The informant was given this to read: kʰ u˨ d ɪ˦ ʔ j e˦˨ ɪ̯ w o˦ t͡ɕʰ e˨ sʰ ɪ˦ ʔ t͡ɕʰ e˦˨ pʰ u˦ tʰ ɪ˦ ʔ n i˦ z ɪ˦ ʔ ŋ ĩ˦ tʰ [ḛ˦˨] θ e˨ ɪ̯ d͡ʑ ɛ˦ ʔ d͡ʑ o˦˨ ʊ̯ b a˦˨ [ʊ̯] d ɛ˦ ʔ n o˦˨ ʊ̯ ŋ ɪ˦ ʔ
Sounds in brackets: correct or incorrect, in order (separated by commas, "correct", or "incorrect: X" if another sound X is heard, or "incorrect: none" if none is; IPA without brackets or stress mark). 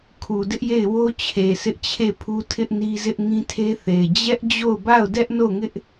incorrect: e˦, correct